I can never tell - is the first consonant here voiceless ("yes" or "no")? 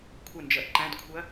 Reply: yes